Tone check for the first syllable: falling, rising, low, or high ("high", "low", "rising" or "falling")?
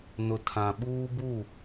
low